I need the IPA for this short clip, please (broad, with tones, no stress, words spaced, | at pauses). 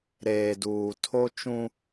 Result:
ɾeː˨duː˨tʰo˦t͡ʃũ˦